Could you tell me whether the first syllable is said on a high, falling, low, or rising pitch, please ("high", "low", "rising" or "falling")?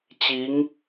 rising